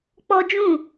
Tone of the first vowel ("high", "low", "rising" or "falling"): high